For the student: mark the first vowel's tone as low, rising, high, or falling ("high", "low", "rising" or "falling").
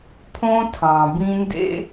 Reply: high